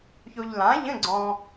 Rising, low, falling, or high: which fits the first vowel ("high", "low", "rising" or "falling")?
low